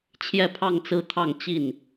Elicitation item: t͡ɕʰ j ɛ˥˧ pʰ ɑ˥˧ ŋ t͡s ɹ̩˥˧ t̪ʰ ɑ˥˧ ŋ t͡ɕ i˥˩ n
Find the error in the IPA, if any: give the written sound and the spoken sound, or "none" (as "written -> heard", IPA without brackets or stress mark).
none